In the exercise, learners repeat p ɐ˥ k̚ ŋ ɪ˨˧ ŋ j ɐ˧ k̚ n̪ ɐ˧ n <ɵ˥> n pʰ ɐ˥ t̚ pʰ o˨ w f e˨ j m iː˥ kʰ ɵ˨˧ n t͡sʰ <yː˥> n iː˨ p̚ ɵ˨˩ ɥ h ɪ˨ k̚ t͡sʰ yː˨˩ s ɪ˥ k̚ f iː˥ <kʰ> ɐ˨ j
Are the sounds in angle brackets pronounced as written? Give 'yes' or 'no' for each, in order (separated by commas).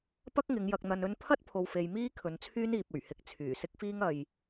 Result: yes, yes, no